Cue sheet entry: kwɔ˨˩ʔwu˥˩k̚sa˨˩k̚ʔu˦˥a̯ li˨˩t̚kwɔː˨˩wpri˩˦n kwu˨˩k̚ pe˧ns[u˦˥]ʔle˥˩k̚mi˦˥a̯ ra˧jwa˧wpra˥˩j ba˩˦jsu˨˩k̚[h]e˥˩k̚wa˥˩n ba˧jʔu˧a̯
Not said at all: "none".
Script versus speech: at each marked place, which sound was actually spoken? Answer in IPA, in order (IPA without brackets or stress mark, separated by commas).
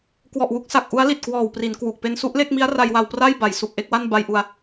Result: u˦˥, ʔ